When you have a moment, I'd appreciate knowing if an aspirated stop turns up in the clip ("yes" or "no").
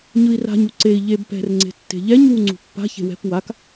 no